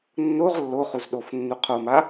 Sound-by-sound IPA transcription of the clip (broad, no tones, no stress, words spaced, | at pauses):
nːoʁ lːo χuzɗofnːu qʰoma